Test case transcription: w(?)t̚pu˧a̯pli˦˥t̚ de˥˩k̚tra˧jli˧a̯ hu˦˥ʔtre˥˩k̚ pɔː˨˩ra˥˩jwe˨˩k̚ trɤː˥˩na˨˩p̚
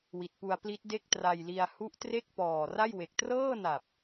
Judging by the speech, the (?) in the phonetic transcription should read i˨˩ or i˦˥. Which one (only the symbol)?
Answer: i˨˩